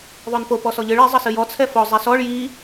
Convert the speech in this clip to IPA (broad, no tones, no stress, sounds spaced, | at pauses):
ðˤ o n p o p ɔ s ɔ ʎ ɨ ɭ i zˤ ə s ɨ j ɔ t͡sʰ ɛ f ɔ zˤ ɛ s ɔ ɭ j i